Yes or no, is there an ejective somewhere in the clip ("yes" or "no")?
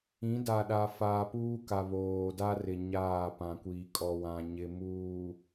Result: yes